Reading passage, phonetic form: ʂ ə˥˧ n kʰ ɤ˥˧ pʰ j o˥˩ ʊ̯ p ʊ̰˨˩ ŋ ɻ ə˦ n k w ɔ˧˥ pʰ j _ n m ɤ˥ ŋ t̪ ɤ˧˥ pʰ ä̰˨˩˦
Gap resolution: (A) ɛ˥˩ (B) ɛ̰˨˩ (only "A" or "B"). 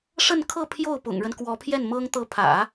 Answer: A